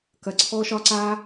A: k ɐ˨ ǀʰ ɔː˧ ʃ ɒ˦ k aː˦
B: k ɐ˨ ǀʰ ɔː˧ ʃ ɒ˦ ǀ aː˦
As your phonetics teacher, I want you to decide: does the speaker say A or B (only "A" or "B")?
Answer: B